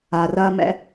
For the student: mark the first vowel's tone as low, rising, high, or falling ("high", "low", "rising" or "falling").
low